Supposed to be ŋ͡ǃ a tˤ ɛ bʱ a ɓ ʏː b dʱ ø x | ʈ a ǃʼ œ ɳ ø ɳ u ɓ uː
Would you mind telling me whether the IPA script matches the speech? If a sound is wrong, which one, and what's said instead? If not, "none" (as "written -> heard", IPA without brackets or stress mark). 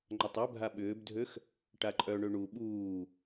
none